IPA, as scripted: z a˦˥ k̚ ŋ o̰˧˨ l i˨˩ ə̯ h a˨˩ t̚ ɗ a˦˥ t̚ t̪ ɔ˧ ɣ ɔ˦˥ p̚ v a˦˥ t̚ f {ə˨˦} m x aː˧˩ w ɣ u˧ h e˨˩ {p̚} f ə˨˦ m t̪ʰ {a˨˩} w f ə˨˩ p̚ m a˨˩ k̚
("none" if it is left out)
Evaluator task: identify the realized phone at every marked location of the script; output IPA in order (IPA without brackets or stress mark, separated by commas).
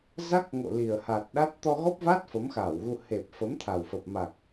ə˨˦, p̚, a˨˩